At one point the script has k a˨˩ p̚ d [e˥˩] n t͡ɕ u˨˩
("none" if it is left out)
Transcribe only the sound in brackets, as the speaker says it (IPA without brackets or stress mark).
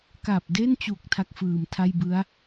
e˥˩